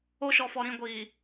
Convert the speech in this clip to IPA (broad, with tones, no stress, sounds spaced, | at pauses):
o˦ ʃ ɔ˨ f ɔ˨ ɾ ĩ˦˨ ɡʷ iː˨